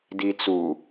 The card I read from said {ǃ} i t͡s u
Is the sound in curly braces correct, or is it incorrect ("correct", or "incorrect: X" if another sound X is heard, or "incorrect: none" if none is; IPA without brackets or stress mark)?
incorrect: d